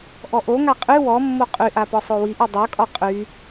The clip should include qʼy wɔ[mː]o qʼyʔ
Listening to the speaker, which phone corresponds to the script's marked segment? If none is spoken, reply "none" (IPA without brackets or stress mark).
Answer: mː